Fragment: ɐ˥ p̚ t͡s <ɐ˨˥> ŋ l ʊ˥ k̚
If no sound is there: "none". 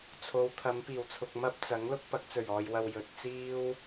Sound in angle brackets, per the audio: ɐ˨˥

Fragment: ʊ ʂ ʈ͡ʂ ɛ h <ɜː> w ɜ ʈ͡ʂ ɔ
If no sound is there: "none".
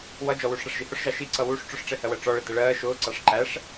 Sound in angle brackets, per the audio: ɜ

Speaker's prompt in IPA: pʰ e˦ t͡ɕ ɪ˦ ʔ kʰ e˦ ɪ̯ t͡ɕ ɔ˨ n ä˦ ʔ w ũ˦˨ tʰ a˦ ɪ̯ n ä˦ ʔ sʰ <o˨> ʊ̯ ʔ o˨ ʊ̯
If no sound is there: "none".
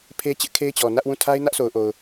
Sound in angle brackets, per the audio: o˨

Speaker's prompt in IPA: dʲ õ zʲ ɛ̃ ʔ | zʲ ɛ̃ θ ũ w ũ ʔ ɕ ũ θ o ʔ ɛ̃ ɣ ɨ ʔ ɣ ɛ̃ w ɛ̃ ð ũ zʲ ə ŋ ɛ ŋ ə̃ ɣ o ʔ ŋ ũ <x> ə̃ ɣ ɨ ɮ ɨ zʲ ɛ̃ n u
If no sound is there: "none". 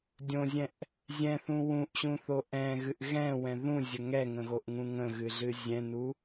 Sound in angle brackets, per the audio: ŋ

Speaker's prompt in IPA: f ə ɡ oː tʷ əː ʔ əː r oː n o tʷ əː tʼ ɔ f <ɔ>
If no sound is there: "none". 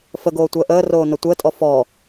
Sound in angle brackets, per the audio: ɔ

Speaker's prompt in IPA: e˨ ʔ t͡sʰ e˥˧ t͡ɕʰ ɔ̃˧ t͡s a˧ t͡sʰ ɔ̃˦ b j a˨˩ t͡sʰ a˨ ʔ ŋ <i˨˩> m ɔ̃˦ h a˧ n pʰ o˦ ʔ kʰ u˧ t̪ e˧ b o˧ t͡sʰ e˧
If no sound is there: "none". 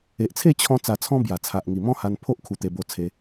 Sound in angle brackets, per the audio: i˨˩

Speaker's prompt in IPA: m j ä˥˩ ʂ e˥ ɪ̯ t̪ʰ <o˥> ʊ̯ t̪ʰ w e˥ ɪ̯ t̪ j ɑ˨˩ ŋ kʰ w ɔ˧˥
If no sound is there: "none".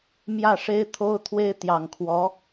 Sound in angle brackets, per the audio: o˥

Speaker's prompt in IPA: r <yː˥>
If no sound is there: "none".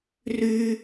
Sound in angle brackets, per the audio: yː˥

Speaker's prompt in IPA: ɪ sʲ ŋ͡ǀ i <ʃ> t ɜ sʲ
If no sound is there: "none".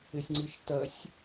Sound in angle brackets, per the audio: ʃ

